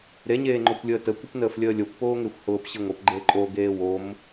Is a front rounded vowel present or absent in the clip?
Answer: absent